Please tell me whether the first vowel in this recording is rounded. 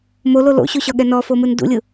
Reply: yes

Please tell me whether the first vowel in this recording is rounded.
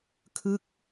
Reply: no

